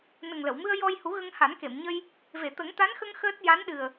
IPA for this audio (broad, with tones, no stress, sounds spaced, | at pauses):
n ə˨˩ ŋ l ə˨˩˨ w m ɨ˧ ə̯ j ɔ˧ j h u˨˩˦ ɣ ə˧ ŋ h a˨˩˦ n k e˨˩˨ m ɲ ə˧ j | v e˨˩˨ t̪ ə˨˩˦ ŋ t̪ a˧˥ n x ə˧ ŋ x əː˦˥ t̚ j a˧˥ n ɗ ɨ˨˩ ə̯